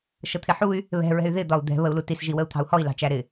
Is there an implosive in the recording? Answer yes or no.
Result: no